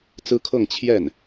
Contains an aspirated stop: yes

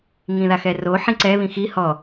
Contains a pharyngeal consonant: yes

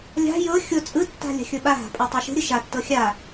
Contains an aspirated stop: no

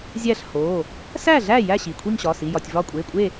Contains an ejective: yes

